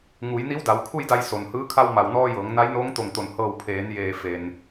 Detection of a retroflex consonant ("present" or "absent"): absent